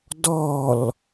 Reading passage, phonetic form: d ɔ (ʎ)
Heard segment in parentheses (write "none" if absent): l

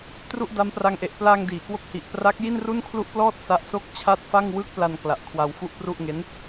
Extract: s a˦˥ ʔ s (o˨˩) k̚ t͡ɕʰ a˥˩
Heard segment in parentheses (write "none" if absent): o˥˩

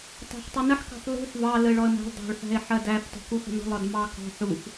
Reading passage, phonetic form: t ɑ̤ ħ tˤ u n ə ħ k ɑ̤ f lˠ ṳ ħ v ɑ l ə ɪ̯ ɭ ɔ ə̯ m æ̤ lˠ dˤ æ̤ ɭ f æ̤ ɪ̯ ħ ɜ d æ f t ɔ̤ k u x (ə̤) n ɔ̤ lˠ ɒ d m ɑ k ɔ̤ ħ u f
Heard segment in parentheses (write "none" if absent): ə̤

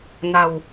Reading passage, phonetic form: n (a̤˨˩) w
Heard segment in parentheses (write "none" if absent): a̤˨˩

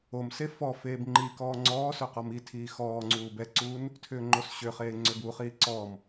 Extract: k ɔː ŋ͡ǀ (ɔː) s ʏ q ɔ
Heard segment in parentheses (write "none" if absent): ɔː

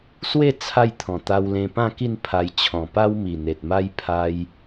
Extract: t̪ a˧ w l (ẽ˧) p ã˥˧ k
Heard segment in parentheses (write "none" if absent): ẽ˧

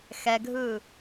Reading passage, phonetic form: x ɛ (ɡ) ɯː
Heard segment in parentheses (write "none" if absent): ɡʱ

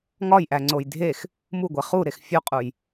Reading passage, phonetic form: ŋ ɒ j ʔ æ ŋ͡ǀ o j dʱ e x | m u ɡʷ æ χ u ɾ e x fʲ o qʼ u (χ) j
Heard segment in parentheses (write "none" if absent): none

